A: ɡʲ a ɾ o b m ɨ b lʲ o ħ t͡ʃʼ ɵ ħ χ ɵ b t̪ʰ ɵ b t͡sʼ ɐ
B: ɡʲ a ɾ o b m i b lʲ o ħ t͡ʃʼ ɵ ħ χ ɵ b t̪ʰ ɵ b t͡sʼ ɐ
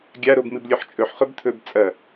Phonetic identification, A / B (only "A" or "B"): A